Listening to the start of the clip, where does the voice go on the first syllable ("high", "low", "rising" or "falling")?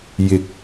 rising